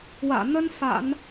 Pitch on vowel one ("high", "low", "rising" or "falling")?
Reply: low